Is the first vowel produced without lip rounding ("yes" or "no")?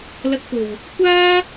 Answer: yes